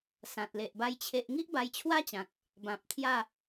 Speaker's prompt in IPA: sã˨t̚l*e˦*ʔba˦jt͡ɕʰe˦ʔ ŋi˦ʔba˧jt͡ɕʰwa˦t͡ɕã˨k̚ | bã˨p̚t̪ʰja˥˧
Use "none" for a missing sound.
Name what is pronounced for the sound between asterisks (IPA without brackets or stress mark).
e˨